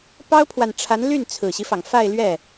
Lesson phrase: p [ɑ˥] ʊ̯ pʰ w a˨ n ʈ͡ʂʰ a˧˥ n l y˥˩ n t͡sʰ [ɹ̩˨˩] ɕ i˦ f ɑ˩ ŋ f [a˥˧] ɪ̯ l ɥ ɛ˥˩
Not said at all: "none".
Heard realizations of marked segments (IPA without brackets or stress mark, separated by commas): ɑ˥, ɹ̩˨˩, a˥˧